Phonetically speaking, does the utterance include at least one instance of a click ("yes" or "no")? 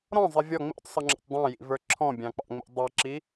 yes